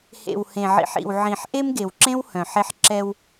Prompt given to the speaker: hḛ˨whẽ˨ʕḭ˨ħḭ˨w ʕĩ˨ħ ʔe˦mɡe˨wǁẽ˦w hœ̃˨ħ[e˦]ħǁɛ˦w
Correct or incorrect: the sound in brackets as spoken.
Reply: correct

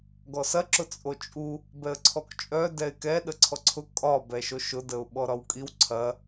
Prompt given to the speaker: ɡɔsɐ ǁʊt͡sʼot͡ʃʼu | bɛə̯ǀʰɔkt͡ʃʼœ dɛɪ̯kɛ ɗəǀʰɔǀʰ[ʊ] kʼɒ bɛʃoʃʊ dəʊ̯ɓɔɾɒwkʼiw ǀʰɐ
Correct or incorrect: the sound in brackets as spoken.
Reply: correct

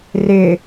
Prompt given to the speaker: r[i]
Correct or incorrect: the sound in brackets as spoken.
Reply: incorrect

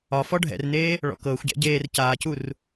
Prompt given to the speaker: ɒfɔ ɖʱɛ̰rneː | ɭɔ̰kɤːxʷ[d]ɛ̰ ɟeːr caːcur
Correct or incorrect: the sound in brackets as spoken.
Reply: incorrect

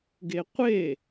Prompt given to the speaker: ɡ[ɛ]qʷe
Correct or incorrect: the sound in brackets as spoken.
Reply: incorrect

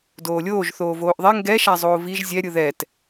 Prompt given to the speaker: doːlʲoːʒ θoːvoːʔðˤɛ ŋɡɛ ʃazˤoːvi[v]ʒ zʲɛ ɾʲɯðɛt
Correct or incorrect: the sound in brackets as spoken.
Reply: incorrect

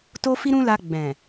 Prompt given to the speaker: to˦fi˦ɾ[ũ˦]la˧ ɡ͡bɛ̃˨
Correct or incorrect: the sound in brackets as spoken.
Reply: correct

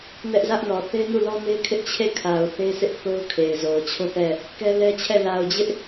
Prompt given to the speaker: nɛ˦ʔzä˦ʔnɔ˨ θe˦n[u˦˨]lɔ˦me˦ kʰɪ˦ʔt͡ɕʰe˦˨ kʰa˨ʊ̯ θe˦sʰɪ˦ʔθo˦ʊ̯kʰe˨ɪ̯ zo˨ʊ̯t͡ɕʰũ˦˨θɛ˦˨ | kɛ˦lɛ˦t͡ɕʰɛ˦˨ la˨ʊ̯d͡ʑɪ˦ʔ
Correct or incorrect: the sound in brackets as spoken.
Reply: correct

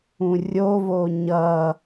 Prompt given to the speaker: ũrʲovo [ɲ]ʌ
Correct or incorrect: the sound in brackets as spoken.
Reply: correct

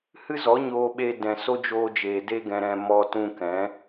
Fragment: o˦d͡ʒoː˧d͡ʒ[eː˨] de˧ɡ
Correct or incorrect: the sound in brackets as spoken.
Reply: correct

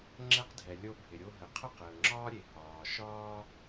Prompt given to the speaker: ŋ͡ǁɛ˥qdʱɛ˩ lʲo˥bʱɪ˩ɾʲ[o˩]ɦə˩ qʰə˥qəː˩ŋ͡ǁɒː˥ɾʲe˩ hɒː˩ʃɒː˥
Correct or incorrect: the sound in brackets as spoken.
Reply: incorrect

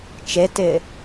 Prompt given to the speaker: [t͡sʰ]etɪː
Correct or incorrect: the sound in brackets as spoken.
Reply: incorrect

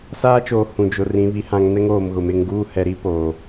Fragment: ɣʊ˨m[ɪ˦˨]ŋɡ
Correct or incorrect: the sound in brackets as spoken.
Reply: correct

